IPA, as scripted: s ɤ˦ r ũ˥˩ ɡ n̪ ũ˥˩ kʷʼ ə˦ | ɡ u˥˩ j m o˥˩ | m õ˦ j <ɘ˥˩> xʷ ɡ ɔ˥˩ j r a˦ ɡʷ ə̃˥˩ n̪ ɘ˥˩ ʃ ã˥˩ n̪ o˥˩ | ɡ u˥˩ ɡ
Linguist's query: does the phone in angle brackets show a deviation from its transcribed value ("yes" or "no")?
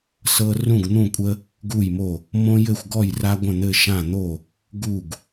no